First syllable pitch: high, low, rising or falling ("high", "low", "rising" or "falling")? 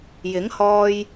rising